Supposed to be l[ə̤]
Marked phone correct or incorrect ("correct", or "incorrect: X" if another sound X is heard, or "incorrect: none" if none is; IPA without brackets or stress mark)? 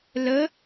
incorrect: ə